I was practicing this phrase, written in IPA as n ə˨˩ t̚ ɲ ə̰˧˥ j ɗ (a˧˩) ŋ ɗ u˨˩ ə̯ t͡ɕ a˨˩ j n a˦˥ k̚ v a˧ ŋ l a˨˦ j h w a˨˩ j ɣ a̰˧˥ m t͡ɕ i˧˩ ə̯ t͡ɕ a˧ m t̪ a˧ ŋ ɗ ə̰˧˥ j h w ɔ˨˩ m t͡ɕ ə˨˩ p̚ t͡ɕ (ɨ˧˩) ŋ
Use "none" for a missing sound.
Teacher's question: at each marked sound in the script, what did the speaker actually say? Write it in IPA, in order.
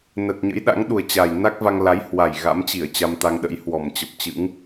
a̰˧˥, ɨ̰˧˥

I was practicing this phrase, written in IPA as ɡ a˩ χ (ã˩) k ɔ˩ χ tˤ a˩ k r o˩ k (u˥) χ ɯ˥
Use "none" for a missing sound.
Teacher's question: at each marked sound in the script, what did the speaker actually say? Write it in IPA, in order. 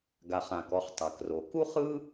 ã˩, u˥

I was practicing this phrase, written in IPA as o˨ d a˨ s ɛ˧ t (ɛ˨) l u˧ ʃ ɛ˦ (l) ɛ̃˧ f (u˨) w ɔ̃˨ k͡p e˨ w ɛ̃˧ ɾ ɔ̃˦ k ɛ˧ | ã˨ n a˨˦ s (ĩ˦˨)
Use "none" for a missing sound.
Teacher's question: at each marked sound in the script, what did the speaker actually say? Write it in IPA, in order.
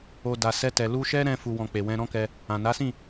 ɛ˨, ɾ, u˨, ĩ˦˨

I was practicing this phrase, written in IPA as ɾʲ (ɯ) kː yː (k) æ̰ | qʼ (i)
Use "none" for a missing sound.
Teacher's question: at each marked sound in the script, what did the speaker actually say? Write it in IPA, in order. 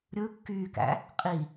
ɯ, k, i

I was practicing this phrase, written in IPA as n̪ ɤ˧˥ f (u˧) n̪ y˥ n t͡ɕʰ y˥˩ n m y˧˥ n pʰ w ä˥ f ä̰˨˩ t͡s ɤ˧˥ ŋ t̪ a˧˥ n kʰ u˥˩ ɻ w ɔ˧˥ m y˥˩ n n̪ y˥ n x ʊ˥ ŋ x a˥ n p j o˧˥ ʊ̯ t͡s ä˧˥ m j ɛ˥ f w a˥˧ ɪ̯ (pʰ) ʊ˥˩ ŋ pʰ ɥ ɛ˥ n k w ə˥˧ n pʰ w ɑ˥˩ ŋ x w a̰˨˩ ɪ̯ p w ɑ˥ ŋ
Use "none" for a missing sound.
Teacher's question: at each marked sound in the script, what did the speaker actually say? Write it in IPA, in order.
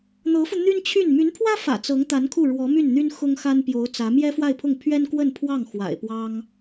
u˧, pʰ

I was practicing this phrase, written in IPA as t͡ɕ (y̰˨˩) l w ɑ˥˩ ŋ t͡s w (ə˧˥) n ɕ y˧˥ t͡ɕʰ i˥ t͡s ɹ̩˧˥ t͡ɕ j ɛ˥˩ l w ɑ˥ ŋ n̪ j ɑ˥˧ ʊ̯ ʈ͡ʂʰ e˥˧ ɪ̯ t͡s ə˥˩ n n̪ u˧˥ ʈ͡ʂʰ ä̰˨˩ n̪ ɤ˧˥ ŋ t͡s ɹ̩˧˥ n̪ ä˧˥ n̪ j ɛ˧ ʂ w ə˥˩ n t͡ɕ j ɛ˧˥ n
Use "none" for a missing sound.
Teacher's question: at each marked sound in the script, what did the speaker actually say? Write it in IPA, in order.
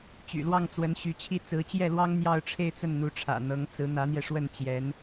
y̰˨˩, ə˧˥

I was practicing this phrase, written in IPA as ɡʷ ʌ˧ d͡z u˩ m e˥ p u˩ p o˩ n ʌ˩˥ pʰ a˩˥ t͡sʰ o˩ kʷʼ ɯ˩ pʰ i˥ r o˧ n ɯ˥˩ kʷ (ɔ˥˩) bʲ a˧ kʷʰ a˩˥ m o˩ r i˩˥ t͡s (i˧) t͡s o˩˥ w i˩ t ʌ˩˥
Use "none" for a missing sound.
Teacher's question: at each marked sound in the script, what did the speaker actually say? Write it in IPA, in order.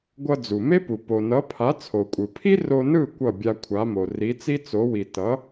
ʌ˥˩, i˥

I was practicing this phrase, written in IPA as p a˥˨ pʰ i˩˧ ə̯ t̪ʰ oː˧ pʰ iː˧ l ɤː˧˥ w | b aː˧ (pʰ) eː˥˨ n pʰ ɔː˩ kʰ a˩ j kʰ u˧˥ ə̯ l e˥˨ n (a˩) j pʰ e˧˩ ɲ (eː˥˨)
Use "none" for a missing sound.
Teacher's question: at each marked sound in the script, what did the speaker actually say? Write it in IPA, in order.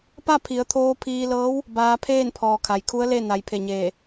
pʰ, a˩˧, eː˧˩

